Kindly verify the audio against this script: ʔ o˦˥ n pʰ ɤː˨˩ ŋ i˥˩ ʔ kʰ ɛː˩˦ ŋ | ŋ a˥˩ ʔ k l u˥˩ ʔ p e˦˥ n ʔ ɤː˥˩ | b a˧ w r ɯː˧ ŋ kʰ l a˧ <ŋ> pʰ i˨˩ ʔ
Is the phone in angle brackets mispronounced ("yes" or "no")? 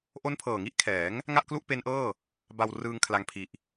no